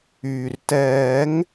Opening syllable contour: low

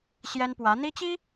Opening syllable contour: high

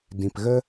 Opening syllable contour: low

